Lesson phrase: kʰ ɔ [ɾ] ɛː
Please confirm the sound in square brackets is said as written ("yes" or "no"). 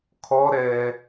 yes